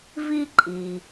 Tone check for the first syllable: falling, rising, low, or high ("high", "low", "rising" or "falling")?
high